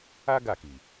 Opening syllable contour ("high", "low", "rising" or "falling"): high